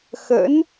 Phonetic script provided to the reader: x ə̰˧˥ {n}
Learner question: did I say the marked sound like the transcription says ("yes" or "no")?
yes